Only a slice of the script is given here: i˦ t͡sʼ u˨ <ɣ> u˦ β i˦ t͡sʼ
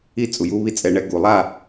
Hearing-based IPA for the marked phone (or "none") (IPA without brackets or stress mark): j